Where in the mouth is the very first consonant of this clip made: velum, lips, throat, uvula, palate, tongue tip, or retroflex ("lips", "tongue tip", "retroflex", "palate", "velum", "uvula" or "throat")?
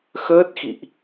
velum